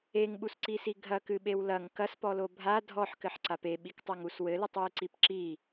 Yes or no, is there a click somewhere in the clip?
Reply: yes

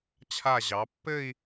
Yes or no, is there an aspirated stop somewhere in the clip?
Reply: yes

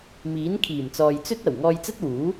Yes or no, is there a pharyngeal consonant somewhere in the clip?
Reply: no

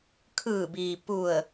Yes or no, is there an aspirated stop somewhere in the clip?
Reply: yes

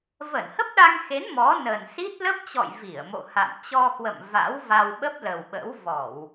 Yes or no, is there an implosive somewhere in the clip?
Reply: yes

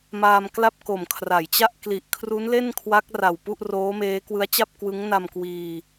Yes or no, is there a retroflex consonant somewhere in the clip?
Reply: no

